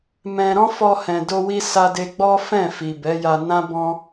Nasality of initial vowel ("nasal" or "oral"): nasal